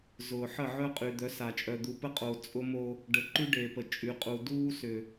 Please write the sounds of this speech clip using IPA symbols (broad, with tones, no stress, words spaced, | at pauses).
zʊː˨ħə˦˨ ʕœ˦qʼy˨d̪œ˨˦sa˨ t͡ʃʼœ˨d̪u˨pə˦qʼo˨ t͡sʼʊ˦mo˦ | ɖə˨ǃy˦ɖe˨pə˨ t͡ʃʼy˨qʼu˨ duː˦sʏ˨